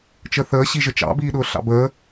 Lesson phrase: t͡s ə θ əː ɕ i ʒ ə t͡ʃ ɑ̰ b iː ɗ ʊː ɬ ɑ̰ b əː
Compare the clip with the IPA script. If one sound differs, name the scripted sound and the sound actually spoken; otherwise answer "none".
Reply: t͡s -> t͡ʃ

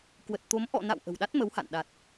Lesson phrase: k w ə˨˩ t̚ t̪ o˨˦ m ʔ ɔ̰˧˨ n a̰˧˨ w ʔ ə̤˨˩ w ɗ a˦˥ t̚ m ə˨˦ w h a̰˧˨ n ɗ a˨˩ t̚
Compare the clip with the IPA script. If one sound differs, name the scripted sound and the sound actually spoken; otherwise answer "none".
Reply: none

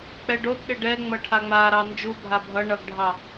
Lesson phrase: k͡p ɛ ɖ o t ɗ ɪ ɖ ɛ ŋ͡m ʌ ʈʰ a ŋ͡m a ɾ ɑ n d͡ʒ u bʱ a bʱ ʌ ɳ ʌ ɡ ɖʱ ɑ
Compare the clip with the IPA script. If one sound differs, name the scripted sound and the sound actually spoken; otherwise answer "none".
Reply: none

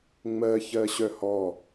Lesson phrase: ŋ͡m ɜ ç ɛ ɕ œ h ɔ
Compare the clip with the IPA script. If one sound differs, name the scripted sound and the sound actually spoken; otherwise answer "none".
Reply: ɛ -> ɜ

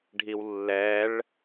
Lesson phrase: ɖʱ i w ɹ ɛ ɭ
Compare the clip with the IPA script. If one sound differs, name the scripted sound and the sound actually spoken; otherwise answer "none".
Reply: ɹ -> lː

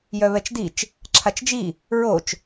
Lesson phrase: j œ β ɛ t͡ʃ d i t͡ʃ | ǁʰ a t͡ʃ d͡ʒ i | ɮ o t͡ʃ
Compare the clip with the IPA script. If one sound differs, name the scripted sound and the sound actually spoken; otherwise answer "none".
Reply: ɮ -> ɹ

